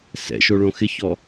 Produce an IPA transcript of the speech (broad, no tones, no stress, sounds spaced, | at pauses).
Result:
s ɛ̰ ʃ o ɭ õ x ɪ ç ɔ